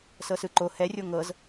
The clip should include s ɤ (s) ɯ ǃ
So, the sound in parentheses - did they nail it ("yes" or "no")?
yes